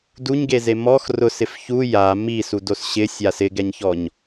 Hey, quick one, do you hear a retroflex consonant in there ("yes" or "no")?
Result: no